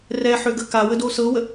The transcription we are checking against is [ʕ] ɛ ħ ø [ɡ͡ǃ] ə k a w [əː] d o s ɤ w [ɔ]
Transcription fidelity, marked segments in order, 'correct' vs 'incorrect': incorrect, incorrect, incorrect, incorrect

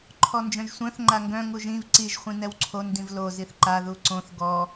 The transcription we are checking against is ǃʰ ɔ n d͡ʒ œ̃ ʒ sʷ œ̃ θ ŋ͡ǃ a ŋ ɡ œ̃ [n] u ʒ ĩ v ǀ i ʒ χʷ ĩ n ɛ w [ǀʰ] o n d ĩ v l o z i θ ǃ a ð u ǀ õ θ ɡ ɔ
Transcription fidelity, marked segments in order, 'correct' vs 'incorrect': incorrect, correct

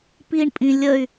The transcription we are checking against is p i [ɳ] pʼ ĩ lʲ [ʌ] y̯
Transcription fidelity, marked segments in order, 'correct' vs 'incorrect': correct, incorrect

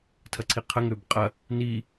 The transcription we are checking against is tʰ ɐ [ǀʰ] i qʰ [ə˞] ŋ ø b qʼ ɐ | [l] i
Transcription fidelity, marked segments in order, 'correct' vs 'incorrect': correct, incorrect, incorrect

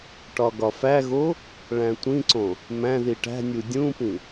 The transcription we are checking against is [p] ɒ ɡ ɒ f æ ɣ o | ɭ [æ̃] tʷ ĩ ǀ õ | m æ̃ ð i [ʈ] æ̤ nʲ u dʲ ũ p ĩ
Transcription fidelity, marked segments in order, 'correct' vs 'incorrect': incorrect, correct, correct

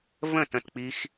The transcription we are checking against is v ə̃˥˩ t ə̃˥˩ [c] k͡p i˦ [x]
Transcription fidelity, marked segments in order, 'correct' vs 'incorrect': incorrect, correct

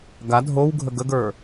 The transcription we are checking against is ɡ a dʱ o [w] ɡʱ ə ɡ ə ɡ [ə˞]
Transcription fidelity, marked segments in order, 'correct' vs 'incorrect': correct, correct

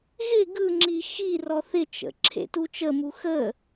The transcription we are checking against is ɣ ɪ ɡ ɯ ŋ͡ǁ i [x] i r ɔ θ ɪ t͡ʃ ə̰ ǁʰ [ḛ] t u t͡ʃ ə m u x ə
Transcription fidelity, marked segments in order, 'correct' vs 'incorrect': correct, correct

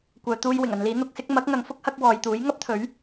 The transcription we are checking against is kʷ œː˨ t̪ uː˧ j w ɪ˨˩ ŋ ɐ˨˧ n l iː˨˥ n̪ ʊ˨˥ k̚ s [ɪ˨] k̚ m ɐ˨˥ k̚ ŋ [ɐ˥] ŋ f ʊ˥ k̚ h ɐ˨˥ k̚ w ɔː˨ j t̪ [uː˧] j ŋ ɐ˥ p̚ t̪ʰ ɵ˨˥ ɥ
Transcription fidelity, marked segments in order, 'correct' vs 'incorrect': incorrect, incorrect, incorrect

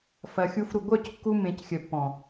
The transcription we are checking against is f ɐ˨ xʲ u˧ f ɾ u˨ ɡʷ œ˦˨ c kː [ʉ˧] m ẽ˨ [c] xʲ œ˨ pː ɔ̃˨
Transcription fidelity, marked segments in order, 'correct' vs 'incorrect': incorrect, correct

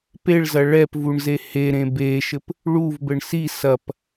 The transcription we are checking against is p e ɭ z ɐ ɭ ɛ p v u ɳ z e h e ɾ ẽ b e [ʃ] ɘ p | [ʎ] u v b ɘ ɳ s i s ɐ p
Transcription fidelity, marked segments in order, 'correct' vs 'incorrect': correct, incorrect

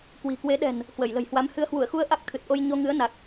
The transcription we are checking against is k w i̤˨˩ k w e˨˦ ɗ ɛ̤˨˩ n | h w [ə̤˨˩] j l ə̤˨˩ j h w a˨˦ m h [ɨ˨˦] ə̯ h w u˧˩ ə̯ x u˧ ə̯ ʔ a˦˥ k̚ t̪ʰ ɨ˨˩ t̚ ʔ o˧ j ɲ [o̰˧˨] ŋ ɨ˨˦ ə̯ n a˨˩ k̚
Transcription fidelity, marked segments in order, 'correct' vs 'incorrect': incorrect, correct, incorrect

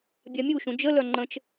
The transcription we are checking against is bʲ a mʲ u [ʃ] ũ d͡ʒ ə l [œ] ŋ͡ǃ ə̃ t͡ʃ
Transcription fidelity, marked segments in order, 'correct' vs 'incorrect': correct, correct

